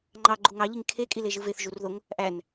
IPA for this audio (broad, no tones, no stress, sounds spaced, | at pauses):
ŋ͡ǃ ɑ ɡ͡ǃ u ŋ ɑ ʎ i ŋ kʰ e kʼ i l e ʒ ɯ v e θ ʒ u r ð o ŋ | ʔ æ n